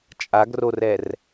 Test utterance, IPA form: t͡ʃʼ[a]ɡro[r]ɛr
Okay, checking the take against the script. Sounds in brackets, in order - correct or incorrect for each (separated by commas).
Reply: correct, correct